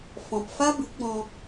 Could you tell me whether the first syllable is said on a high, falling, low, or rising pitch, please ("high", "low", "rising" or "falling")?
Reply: low